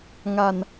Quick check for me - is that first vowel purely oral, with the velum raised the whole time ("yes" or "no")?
yes